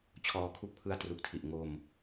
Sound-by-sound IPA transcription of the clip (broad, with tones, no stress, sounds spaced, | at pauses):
t͡ɕʰ ɔː˧ kʰ u˦˥ k̚ pʰ ɯ˦˥ a̯ t r u˨˩ k̚ tʰ i˨˩ ʔ ŋ o˧ m